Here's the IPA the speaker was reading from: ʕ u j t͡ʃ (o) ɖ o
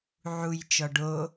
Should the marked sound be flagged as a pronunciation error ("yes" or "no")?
yes